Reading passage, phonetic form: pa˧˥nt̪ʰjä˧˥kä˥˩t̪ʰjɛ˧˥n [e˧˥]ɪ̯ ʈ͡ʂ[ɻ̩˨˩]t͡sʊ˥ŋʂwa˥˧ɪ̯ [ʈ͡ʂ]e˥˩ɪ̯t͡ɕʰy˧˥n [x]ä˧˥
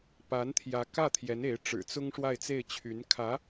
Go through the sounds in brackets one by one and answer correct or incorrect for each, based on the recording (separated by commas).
correct, correct, incorrect, incorrect